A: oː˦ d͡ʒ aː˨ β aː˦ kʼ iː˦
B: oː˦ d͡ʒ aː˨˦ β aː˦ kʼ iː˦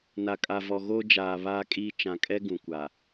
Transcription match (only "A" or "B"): A